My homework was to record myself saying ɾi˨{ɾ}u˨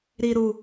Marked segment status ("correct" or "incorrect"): correct